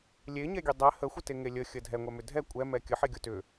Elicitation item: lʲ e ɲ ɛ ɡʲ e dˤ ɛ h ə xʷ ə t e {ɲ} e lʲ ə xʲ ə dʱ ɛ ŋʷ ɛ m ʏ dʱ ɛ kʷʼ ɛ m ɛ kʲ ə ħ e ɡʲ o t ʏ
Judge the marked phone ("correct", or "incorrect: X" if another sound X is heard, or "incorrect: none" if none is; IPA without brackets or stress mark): incorrect: ŋ